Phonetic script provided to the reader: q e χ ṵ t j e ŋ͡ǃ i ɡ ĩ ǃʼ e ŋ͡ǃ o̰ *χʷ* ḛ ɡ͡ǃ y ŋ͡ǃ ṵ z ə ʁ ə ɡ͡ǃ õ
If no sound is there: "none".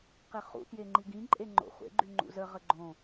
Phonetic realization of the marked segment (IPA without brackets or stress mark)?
χʷ